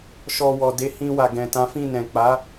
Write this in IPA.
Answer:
ʃ ɔ˨ w ɔ˨ d e˨˦ h ĩ˧ w a˨ ɡ ɛ̃˨ t ã˨˦ f ĩ˦˨ n ɛ̃˨ k͡p a˨˦

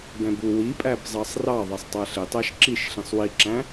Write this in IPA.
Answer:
b ɛ̃ b u w i pʼ æ b zˤ ɑ sˤ r ɑ ðˤ ɛ sˤ tˤ æ ɬ ɪ tˤ æ ʃ ǁ i ʃ ɬ ĩ sˤ w i ǁ æ̃

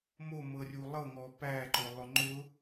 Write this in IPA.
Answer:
m o m ɤ rʲ u lˠ ɤ ŋ ɔ p æ ǃ ʊ lˠ ʊ ŋ͡ǃ ʊ

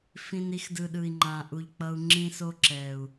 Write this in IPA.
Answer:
f ĩ˨ n i˧ x d ɯ˨ ɗ ɯ˨ i̯ ŋ͡ǃ ã˨ ʔ u˨ ʎ k͡p ʌ˧ u̯ ŋ͡ǁ ĩ˦ s o˦ ǁ ɛ˨ u̯

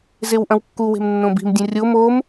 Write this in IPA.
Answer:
z e w ʔ ɐ̃ w kː u w e̤ m nː õ b i̤ m dʲ ũ rʲ o m o m

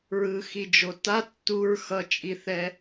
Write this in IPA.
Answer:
ɹ ɯ x i d͡ʒ o t a tː u ɹ x ʌ t͡ʃʼ i θ ɛ

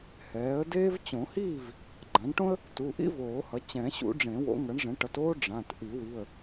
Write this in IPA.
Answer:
h ɛː˩˥ ə̯ d eː˥ v t͡ɕ õ˨˩˦ h iː˥˨ v | ɡ͡ǃ ã˩˥ ɳ ʈ õ˥ ə̯ | t u˩˧˩ ʔ ḭ˥ v oː˨˩˦ h ʌ˩˥ t͡ɕ ɛ̃˨˩˦ ɕ ṵ˨˩˦ ɖ͡ʐ ẽ˨˩˦ w o̰˩˥ ŋ ʌ˩˥ ɳ ʐ ɛ̃˩˥ ʈ ʌ˩˥ t oː˥ ɖ͡ʐ ã˩˧˩ t ʔ i˨˩˦ w i˩˧˩ ə̯

